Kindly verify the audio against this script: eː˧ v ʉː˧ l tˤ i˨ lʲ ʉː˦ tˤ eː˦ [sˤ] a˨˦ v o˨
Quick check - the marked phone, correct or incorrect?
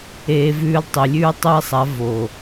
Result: correct